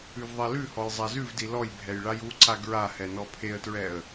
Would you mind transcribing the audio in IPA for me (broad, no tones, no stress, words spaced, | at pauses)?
ʉvðˤɛlʉhɔj zˤazʉvdi lɔjbʱɛj ɭajuǀa ɡɹahɛ nɔpʰeə̯tɹɛə̯